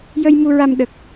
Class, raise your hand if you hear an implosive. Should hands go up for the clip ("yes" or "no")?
yes